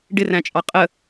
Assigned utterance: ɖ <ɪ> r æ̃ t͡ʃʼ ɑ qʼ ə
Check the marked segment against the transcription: correct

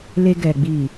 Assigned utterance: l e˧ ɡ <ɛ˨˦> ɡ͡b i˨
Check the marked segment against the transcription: incorrect: ɛ˨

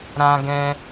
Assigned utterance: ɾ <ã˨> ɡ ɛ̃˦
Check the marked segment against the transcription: incorrect: ã˦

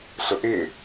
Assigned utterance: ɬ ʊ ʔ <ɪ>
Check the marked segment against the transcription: correct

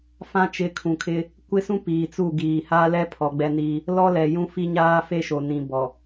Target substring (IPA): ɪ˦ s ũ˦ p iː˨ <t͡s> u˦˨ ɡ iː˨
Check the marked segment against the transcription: correct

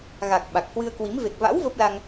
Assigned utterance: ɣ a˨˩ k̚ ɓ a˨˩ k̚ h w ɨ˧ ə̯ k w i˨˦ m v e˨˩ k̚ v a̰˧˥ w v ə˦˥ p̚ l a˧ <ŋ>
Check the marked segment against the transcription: correct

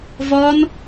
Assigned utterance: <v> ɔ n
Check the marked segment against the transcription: correct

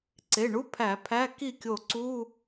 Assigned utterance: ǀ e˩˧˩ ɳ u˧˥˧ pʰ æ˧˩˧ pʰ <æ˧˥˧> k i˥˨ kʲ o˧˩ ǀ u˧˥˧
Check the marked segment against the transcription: correct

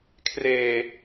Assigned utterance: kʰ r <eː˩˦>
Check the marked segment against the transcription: incorrect: eː˨˩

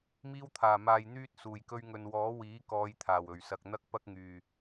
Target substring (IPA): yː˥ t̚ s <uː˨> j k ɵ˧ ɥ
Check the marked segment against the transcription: incorrect: uː˨˩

